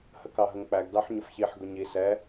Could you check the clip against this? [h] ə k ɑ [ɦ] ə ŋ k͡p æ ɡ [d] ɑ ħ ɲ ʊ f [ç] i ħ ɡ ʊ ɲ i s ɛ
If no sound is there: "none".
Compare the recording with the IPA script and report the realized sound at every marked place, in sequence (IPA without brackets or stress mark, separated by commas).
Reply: h, ɦ, d, ç